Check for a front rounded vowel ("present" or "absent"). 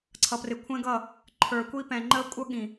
absent